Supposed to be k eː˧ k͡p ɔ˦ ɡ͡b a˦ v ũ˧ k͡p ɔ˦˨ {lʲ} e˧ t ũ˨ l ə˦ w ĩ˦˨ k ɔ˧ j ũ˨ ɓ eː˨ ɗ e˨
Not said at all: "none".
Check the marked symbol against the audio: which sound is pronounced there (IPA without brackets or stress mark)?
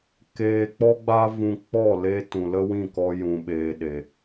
l